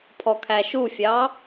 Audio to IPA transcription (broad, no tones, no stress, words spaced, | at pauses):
pʰɔkʰæʃufʲɑ